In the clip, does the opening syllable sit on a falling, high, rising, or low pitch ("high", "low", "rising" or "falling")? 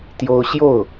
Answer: high